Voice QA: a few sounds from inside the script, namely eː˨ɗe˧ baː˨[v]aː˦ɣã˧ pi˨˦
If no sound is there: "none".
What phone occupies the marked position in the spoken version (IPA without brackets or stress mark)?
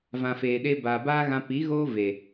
b